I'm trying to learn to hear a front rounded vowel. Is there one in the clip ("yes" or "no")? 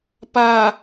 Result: no